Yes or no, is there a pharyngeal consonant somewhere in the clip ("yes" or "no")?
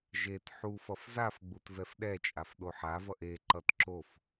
yes